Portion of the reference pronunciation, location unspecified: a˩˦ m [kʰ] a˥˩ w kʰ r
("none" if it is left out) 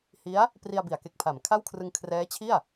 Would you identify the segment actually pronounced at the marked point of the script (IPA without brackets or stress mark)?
kʰ